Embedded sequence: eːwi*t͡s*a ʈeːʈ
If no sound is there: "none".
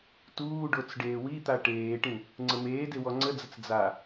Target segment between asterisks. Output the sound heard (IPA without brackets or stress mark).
t̪